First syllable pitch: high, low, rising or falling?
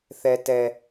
high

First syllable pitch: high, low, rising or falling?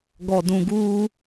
low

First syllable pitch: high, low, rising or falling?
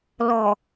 low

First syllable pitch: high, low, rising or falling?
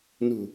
low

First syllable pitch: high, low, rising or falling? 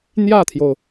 falling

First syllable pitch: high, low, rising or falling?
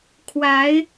rising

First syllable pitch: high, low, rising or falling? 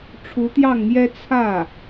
rising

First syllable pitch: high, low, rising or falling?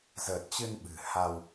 low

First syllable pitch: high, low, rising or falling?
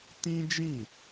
high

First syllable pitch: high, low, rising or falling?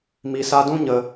low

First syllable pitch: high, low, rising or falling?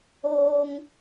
high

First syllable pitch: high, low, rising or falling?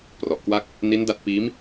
low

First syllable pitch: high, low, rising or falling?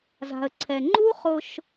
low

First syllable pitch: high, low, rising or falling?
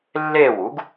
falling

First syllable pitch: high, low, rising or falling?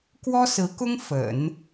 high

